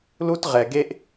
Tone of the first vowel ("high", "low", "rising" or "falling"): high